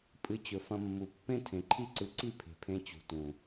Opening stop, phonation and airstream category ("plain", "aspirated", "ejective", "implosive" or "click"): ejective